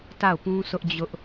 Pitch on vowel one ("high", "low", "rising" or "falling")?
falling